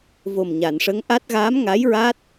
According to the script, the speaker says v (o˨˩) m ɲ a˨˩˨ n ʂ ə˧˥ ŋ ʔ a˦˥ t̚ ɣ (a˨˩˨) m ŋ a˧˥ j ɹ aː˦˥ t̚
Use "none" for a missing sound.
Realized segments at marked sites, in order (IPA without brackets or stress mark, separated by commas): o˨˩, a˧˥